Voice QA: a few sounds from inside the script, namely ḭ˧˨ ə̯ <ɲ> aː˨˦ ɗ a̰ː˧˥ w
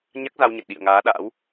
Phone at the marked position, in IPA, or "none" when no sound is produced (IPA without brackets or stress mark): ŋ